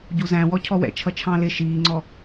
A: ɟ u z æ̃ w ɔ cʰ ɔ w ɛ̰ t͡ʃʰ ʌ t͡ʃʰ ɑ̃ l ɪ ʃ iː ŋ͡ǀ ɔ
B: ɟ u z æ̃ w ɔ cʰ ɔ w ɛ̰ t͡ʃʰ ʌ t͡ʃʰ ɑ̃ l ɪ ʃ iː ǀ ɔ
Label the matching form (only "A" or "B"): A